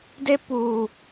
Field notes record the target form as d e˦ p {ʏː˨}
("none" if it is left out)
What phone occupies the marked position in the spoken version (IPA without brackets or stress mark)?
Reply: uː˨